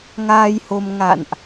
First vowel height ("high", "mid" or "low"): low